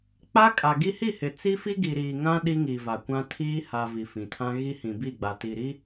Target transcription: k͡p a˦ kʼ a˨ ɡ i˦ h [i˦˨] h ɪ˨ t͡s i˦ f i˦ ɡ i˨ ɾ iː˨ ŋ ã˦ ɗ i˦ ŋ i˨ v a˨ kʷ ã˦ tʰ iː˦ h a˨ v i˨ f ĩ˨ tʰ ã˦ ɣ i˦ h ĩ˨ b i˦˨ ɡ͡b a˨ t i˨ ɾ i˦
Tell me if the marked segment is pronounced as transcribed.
yes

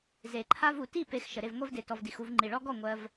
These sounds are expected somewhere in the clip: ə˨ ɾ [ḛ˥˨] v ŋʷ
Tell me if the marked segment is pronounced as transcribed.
no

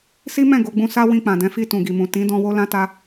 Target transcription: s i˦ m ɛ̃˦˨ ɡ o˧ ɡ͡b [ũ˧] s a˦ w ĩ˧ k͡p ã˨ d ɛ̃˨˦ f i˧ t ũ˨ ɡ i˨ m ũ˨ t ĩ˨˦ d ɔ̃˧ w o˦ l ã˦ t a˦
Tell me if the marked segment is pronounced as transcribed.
yes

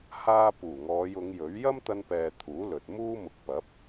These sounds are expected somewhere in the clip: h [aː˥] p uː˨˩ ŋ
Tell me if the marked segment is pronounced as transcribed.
no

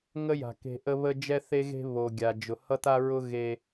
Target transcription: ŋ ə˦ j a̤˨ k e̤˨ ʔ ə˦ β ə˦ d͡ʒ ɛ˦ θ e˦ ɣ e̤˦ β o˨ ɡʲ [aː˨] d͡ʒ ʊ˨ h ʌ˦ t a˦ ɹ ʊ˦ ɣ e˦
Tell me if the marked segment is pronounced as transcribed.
no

